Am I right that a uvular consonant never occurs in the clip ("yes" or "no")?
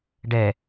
yes